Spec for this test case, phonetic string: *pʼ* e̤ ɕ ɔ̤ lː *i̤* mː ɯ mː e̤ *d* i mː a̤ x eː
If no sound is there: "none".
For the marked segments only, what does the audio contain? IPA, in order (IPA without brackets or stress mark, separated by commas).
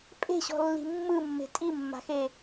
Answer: pʼ, i̤, tʼ